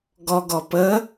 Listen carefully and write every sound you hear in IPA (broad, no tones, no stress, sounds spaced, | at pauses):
ɡ ɔ ɡ ɔ p ə